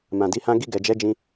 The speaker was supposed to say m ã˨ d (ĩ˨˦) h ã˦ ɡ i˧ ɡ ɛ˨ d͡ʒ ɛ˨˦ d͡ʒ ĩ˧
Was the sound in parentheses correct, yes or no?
no